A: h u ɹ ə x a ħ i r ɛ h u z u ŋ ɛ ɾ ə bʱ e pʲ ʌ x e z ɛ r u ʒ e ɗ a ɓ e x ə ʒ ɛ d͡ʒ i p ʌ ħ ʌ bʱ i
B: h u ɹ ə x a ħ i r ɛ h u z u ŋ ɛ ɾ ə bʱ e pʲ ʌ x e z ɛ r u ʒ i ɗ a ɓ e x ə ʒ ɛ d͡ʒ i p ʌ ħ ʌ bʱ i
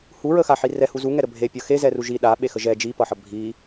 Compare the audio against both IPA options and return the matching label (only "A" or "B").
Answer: B